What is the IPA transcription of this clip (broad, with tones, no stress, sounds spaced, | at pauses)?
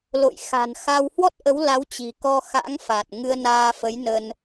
l o̰˧˨ j x a̤˨˩ n x a˧ w h w ɔ˦˥ t̚ ʔ ə˨˦ w l a˨˦ w t͡ɕ i̤˨˩ k ɔ˧ x a̰˧˥ ŋ f a˨˩ t̚ ŋ ɨ˧ ə̯ n aː˧ f ə˨˦ j n ə˧ n